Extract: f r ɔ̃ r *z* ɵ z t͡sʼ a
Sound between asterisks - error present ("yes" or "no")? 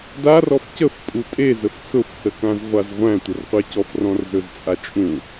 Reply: no